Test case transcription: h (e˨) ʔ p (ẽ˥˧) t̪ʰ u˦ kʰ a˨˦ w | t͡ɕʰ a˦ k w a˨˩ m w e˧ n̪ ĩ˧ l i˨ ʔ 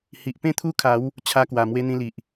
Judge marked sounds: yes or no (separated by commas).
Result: no, yes